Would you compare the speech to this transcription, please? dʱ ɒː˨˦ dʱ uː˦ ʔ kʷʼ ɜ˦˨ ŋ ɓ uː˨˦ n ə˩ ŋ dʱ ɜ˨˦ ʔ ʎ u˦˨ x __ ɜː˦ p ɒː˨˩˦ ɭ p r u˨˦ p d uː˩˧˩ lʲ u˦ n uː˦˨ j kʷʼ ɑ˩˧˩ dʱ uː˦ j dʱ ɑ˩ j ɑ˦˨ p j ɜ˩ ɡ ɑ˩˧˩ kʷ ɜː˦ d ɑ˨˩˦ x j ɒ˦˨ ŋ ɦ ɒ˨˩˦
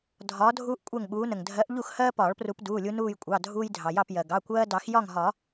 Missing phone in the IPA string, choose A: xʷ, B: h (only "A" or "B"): B